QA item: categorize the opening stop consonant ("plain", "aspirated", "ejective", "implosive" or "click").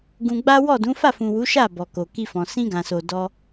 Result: plain